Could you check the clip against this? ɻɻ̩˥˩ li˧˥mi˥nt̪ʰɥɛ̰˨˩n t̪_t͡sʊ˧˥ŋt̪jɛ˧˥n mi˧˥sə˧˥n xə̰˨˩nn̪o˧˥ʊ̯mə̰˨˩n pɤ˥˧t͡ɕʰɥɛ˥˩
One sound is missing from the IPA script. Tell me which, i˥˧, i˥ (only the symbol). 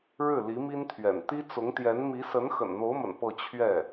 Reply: i˥